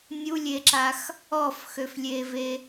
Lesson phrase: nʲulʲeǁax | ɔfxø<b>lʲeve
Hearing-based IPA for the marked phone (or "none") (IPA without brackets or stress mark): f